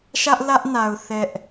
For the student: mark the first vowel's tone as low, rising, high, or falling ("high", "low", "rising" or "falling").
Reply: high